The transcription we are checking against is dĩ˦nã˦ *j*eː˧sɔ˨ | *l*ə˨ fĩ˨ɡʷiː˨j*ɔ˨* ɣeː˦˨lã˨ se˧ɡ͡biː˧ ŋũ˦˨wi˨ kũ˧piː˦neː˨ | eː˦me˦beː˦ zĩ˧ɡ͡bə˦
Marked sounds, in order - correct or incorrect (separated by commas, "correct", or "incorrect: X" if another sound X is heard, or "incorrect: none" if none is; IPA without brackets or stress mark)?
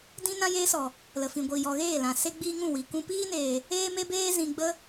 correct, correct, correct